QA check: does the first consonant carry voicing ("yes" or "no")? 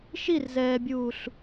no